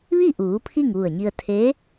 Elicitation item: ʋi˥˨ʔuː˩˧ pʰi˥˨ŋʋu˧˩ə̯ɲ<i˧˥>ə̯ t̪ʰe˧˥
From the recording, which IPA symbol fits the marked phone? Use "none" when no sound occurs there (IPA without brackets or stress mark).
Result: i˧